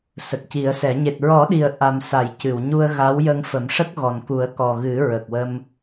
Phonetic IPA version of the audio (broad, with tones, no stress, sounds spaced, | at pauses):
s ə˨˩ k̚ c i˨˩˦ ə̯ s ɛ˨˩˦ ɲ e˨˩ t̚ ɹ ɔ˨˩˦ ɗ i˨˩ ə̯ ʔ a˨˩ m s a˨˩˨ j c ɨ˨˩˨ w ɲ u˧ ə̯ ɣ a˧˥ w j ə˧ ŋ f ə˨˩˦ m ʂ ə˦˥ k̚ ɣ ɔ˨˩ n k u˨˩˦ ə̯ k ɔ˨˩ ɣ ɨ˨˩˦ ɹ ə˨˩ k̚ w ə˧ m